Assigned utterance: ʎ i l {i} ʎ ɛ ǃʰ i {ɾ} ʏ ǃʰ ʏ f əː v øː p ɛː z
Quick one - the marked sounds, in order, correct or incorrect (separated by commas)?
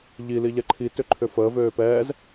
correct, incorrect